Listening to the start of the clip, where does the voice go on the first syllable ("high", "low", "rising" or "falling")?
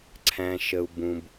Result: low